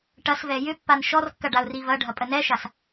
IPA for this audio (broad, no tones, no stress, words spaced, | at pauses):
ʈɐsvɛ jʏpːan ʃɔrkːɐ ɖaʊ̯rivɐɖʱɐ pʼənɛʃas